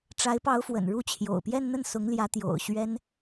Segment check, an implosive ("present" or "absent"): absent